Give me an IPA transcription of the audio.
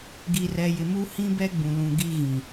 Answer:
ɡ i˨ r ɛ˨ j ɪ˨ m u˦ h ĩ˦ b ɛ˦ ɡ͡b ũ˨ l ũ˨ ɡ i˦ ɣ ĩ˨

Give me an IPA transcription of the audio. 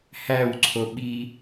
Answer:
h æ w ǀʰ o ɓ i

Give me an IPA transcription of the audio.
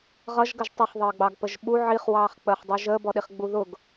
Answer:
ʁ ʌ ʒ ɡ ə ʒ tˤ ə χ ðˤ əː ɡ͡b ɑ ɡ p ə ʒ ɓ u ʕ i χ w ɑː χ k͡p əː χ dˤ u ʒ əː b ɔ ɗ i χ ɡ͡b u ð ʊ ɡ

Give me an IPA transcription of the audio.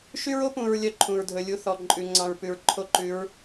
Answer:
ʃ y˦ ɹ o˦ p ũ˨ ɹ lʲ œ˦ ǃʰ ũ˨ ɹ dʱ ɵ˨ lʲ u˦ θ ɔ˨ ǃʼ ʉ˨ ŋ͡ǀ ɑ̃˨ ɹ p ʉ˨ ɹ ǃʰ o˦ ǃ ʉ˨˦ ɹ

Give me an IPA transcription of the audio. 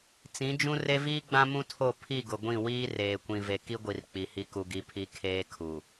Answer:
t͡s ĩ˨˦ d͡ʒ ũ˦ r e˦ v iː˦ ɡ͡b ã˦ m ũ˦ tʰ o˦˨ pʰ i˦˨ ɡ ʊ˨ ɡʷ ĩ˦˨ w iː˦ r eː˨ kʷ ĩ˨ v e˨ k i˦ ɡʷ i˨ r k͡p i˨ h i˦ k u˨ ɡ i˨˦ pʰ i˨˦ kʰ eː˦ kʰ u˨

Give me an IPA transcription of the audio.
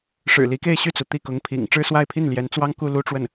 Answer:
ʂ ɻ̩˨˩ l i˧˥ k e˥˧ ɪ̯ ɕ y˥˩ t͡s u˩ t̪ i˥˩ k ʊ˧˥ ŋ pʰ ḭ˨˩ ŋ ʈ͡ʂ ɻ̩˥˧ s w a˥˧ ɪ̯ pʰ i˥˩ n l j ɛ˧˥ n t͡s w ɑ˥ ŋ k u˥˧ l u˥˧ ʈ͡ʂ w ə˥˩ n

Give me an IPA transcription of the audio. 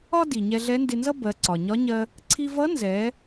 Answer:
ɒ˥ d i˩ ɲ ɛ˧ ɮ ɛ˧˥ n d ɪ˧ n z ʌ˥ b ɜ˩˧ ǀ ɒ˩ ɲ ɒ˧˥ ɲ ɜ˧ | ǀʰ i˧ v ʌ˧˥ n z ɛ˩˧

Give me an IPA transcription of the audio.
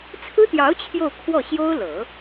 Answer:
t͡sʰ ɹ̩˥ t̪ j ɑ˧˥ ʊ̯ t͡ɕʰ j o˥˧ ʊ̯ kʰ w ɔ˥˩ ɕ j o˥ ʊ̯ l ɤ˨˩˦

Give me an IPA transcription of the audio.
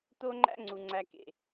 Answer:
t̪ o˦ ŋ͡ǃ æ̰˦ ŋ͡ǀ u˨ ŋ͡ǀ æ˧ k ḛ˨

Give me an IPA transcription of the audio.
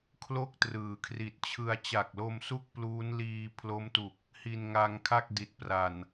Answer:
kʰ l o˥˩ k̚ t r ɯː˩˦ kʰ r i˨˩ t̚ t͡ɕʰ ɯ˧ a̯ t͡ɕ a˨˩ k̚ l o˧ m s u˥˩ k̚ p l uː˦˥ n l iː˧ pʰ l o˦˥ m t u˨˩ k̚ | h i˧ n ŋ a˧ ŋ kʰ a˥˩ k̚ d i˨˩ t̚ p r a˨˩ n

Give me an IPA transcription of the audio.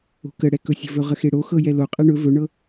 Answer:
o̤ k ə ɽ ɛ k ɵ sʲ ə̤ v ɵ ʁ ə x e ɽ o x ɤ j ɛ l o qʼ ɛ ɳ ɵ v ɵ ɳ ɤ

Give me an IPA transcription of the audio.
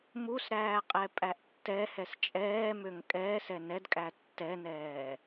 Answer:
m u s ɾ æː qʼ ɛ pʼ æ ʔ tː ɛ h ɛ s t͡ʃʼ ɛː m ø ŋ kʼ ɛː s ɛ n ɛ d kʼ æ tː ɛ n ɛː

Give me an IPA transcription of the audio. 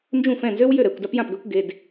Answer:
n d͡ʒ ũ˥˩ f ɛ̃˥˩ n z ø˥ w j ø˥˩ ɾ ɛ˥˩ kʷ d a˥ p j ã˥˩ p ɡ ø˥ kʷ ɡ e˩˧˩ d

